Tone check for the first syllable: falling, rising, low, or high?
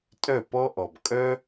falling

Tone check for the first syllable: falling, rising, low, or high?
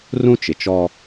high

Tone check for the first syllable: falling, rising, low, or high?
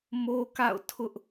high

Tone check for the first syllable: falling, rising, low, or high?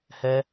high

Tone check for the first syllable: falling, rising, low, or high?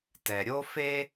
low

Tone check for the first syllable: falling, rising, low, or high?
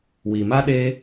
low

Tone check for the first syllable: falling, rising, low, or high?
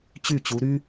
falling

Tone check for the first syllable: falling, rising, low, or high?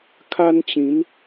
high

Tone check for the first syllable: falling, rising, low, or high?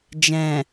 low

